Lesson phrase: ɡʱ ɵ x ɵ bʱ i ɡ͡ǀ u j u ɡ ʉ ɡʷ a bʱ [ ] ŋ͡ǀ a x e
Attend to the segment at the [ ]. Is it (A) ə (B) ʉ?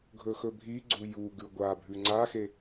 B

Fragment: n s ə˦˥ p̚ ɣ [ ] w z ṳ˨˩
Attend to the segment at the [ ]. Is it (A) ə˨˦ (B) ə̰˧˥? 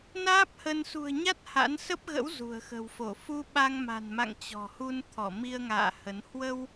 B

